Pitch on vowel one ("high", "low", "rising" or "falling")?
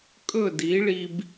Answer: falling